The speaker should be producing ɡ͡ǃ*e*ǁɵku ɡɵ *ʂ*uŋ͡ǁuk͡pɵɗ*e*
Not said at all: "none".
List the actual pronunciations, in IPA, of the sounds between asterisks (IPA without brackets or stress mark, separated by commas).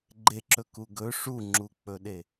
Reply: e, ʂ, e